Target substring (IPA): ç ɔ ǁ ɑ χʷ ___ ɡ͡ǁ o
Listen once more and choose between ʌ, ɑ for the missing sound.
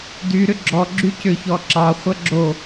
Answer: ʌ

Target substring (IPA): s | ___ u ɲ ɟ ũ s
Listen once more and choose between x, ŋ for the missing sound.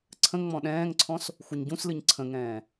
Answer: x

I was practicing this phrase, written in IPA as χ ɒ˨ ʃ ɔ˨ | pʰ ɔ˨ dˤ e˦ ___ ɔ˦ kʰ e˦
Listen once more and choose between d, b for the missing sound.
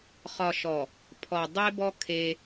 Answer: b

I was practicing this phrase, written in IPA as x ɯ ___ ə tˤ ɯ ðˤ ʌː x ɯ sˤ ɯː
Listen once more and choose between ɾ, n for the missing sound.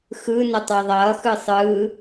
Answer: n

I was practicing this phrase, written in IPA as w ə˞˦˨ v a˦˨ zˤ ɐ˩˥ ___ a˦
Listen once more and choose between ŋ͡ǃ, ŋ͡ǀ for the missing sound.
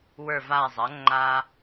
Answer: ŋ͡ǃ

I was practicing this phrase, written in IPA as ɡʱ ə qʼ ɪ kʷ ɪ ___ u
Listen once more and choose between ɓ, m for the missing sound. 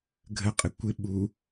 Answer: ɓ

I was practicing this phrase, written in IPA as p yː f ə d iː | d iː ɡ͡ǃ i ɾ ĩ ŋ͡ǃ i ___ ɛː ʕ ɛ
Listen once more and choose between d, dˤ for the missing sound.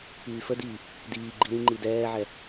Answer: d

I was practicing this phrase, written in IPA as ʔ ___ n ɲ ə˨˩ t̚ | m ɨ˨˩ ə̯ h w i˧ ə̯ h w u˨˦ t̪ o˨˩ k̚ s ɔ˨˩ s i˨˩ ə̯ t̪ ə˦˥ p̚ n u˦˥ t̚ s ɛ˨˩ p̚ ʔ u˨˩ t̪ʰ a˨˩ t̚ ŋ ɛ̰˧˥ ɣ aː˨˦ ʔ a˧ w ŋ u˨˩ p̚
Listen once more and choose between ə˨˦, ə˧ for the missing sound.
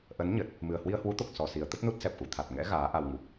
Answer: ə˨˦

